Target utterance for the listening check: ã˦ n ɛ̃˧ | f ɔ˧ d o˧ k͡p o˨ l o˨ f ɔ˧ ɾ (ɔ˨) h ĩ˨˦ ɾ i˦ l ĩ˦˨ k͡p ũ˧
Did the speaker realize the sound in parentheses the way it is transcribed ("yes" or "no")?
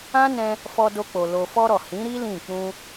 yes